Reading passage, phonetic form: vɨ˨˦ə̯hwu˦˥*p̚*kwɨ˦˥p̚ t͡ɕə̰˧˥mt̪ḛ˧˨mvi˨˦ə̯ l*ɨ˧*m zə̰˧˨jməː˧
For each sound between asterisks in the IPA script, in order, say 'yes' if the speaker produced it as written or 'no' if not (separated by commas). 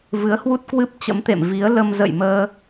no, no